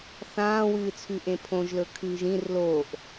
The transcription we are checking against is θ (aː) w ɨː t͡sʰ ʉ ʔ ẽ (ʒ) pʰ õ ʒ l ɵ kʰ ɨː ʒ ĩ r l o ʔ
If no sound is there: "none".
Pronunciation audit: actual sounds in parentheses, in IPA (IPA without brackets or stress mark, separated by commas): ãː, none